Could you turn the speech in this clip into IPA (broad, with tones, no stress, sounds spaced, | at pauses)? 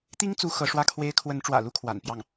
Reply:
t̪ i˥ ŋ t͡s u˧˥ x ɤ˧˥ ʂ w ä˥˩ kʰ w e˥ ɪ̯ kʰ w ə˧˥ n ʈ͡ʂ w ä̰˨˩ l u˥ kʰ w a̰˨˩ n p j ɑ˥˩ ŋ